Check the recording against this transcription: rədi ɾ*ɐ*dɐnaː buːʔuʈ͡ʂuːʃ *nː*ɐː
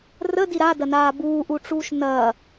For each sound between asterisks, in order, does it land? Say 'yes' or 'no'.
no, no

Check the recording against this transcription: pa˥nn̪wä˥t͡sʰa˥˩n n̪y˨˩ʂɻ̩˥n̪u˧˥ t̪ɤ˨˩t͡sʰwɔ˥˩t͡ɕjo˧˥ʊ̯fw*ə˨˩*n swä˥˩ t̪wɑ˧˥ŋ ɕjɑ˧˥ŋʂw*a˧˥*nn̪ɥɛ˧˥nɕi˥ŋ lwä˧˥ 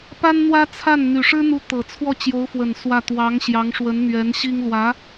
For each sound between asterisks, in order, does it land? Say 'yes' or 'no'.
yes, no

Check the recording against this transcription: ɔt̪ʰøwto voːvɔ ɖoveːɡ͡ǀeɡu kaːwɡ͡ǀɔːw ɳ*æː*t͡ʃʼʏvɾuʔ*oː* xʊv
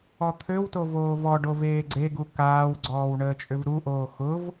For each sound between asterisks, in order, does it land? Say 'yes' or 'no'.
no, yes

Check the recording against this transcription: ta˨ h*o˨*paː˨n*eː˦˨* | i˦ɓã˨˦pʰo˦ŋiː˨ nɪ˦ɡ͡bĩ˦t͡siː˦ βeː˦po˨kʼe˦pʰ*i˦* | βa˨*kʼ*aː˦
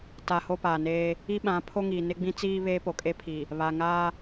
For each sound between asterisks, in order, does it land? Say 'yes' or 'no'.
no, no, no, no

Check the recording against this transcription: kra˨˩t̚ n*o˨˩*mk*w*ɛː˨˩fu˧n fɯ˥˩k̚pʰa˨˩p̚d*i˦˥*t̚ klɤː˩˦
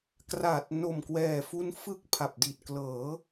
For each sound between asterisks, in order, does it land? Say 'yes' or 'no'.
yes, yes, no

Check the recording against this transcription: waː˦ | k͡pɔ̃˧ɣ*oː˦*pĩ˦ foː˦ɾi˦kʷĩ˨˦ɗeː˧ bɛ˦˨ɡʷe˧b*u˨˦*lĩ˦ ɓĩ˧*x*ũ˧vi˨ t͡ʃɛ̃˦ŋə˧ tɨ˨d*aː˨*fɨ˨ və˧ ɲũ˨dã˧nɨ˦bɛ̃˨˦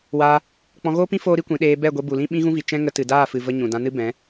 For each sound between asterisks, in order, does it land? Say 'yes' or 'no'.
yes, no, no, no

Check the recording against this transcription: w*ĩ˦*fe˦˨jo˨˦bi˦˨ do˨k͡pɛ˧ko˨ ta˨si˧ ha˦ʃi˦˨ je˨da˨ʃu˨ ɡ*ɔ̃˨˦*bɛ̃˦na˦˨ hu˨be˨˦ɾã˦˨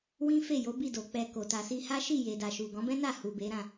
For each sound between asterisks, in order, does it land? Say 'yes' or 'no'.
yes, yes

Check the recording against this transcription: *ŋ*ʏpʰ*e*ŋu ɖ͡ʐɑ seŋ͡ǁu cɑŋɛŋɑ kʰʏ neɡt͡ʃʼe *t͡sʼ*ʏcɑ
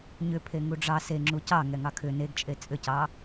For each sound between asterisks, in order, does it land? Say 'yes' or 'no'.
no, yes, yes

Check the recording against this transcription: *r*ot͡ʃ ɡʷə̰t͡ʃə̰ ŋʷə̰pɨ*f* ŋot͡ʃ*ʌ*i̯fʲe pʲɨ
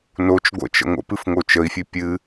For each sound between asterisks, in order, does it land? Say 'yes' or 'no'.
no, yes, no

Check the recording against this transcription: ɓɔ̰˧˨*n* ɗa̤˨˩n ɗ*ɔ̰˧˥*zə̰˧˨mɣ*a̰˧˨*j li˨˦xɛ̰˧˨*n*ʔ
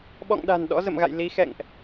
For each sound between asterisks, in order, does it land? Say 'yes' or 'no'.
no, yes, yes, no

